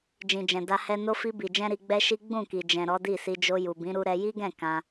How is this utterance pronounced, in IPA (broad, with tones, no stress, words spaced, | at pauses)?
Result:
d͡ʒĩ˨d͡ʒɛ̃˨ da˧hɛ˧no˦ fi˧bi˨d͡ʒɛ̃˧ ɾi˧ɡ͡bɛ˦ʃi˦ ɡ͡bũ˦˨ki˨ d͡ʒɛ̃˨ ɾɔ˨˦di˦˨si˧ d͡ʒo˧ju˨bĩ˨˦ ɾu˧ɾɛ˧ ji˦ɡɛ̃˦˨ kã˧